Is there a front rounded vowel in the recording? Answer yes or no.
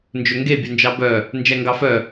yes